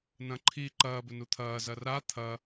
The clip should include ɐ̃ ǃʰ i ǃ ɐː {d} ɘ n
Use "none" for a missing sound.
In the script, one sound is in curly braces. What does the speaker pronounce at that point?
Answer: b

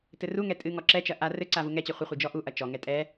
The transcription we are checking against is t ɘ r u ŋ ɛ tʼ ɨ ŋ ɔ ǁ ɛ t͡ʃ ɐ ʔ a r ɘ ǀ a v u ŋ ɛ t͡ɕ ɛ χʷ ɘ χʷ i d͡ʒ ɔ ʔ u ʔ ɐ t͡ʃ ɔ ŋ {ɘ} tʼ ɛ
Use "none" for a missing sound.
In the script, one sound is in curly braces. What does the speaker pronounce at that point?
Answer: ɛ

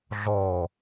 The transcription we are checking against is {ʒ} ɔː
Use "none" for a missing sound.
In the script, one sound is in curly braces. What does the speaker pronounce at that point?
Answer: ɮ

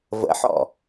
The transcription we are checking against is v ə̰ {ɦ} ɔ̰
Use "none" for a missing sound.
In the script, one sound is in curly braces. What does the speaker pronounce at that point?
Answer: ħ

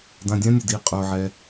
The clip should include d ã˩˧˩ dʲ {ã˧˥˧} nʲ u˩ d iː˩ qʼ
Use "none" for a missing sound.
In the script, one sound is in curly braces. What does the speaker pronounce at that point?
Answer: ã˧˥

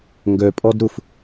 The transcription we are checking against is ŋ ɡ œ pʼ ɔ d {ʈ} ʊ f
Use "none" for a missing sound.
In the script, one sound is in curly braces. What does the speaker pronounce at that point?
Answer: ɾ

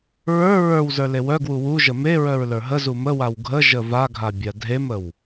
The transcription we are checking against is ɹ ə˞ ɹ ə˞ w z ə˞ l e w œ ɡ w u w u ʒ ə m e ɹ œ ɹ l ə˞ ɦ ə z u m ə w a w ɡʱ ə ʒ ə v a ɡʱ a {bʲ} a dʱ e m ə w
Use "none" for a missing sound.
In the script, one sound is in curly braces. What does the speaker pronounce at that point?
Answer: bʲ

